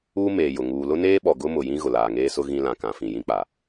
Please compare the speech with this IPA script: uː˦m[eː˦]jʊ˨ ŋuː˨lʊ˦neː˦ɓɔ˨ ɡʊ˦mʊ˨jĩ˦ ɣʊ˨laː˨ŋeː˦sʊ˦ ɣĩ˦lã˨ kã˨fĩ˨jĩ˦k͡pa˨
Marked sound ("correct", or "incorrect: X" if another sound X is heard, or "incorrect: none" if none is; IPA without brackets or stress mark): incorrect: eː˨